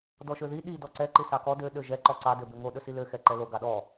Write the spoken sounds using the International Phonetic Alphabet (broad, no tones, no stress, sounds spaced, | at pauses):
d ɔ ʃ ø ð i ɗ i d ɔ ǀ ɛ ǃ i s ɑ k ɔ d ø ɗ ø ʒ ɛ ǃ ɔ ǀ ɑ d ø b ø ŋ o ɗ ɵ s i l ø x ɛ ǃ ɛ l o ɡ ɑ ɗ ɔ